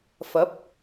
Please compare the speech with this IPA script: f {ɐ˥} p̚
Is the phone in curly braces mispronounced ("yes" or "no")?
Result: yes